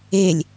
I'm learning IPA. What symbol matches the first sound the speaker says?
e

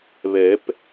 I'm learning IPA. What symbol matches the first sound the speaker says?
β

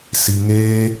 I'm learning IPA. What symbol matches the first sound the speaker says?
s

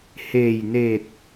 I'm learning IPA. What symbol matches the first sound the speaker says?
h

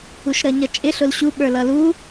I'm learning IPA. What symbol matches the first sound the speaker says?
u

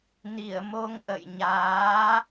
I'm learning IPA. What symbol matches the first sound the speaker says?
n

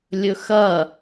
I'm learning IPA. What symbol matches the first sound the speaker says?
lʲ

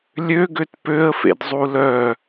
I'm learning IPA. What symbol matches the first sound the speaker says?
lʲ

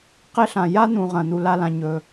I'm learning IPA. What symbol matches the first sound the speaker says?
q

